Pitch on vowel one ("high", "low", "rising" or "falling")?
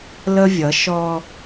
high